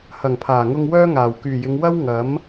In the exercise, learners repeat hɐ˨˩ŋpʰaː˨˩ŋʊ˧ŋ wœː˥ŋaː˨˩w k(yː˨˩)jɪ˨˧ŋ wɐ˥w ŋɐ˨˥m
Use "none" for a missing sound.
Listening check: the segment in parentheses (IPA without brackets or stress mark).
yː˨˩